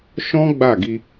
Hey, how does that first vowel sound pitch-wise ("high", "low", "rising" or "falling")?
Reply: high